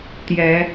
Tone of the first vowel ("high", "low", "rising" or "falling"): rising